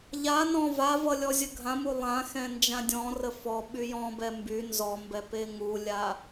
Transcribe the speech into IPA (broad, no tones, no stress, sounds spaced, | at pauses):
ʎ a n ɔ̃ v a v ʌ lʲ ɔ zʲ ə ɡʱ ã m u lˠ ã x ɛ̃ n d͡ʒ ã dʲ ɔ̃ r ə f ɔ ɓ y j ɔ̃ b ɛ m b y n z ɔ m b ɛ p e ŋ u lʲ a